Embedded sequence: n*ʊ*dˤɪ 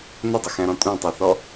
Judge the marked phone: correct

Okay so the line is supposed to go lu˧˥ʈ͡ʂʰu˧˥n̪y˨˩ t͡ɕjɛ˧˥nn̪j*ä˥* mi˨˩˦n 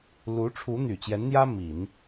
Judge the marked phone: correct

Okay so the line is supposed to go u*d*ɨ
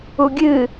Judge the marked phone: incorrect: ɡʲ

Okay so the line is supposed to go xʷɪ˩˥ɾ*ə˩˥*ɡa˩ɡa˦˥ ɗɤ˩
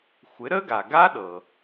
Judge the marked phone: incorrect: ə˦˥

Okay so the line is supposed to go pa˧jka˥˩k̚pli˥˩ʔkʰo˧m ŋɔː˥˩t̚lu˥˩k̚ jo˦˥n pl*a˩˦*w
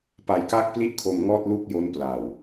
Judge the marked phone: incorrect: a˨˩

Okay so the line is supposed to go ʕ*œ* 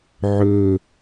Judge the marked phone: incorrect: ɵ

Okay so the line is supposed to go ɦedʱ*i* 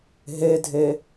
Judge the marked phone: incorrect: e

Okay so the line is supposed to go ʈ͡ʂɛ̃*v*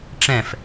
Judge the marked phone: incorrect: f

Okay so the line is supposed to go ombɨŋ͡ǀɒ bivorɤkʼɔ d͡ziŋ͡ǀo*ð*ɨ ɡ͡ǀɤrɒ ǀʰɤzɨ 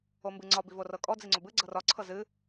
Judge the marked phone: incorrect: b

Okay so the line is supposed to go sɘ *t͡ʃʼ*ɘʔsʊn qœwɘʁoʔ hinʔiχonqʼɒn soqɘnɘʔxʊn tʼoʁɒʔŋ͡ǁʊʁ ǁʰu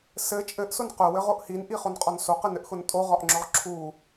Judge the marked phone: correct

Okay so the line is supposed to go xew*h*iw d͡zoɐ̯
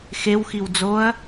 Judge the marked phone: incorrect: x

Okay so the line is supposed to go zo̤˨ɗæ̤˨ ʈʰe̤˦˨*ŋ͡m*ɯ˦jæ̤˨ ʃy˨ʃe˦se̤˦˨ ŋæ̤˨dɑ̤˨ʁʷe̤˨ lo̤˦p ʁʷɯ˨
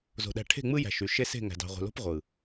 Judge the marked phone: correct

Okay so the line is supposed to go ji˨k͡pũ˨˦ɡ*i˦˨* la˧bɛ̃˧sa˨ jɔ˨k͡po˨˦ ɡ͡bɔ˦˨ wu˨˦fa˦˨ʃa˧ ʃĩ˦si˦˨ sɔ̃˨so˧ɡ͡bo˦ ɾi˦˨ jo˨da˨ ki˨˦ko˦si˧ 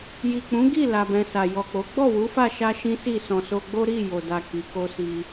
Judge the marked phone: correct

